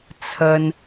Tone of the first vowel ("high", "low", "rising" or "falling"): low